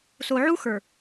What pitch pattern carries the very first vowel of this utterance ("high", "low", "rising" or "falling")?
low